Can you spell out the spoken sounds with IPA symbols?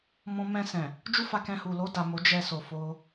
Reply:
mɔ̃˧mɛ̃˧sɛ̃˨ | d͡ʒu˦fa˧kɛ̃˧hu˨ lo˧ da˨ mo˨˦d͡ʒɛ˧so˨ fo˧

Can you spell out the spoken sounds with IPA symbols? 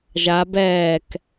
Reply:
ʒa bɛːk

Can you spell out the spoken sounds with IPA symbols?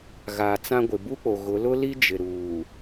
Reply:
ɣaː˨t͡sã˦ɡʷɪ˨ bu˦k͡po˨ɣʊ˨˦ lʊ˦li˦ d͡ʒɪ˨ ɾuː˨

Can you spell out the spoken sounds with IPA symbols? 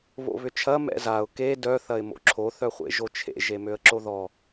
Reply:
βo̰βʏt͡ʃʰɐ mɛ̰zaʊ̯ ke dœ θɐɪ̯mo̰ǁʰo θœχʷḛʒot͡ʃʰḛ ʒemøə̯ǁoðɔ

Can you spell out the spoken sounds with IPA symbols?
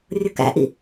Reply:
rʲʊkæ̰ʔḭ

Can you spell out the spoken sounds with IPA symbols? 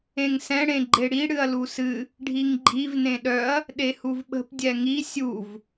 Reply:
ẽŋsɛ̃ ɽẽɡ͡ǃeɽi ɽɨɐ̯lusɨ | ɖʱiŋɡ͡ǃiv nẽɗœɐ̯ | ɗehuvɓə̤p dʲɛŋi sʲuv

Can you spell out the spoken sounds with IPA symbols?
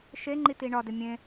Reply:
ʃeŋ͡ǃiti ɳɒdɪ mʲẽ

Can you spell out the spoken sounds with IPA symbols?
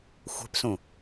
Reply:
xʷɛ̤psũ

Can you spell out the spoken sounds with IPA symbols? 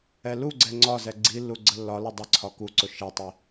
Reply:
ɛluɡ͡ǀɛ ŋ͡ǀɒzɛ ɡ͡ǀilːu ɡ͡ǀəlːɒlʊ dˤə ǀʰɒkuǀʊ ʃɛtˤi

